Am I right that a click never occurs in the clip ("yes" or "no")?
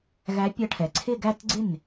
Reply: no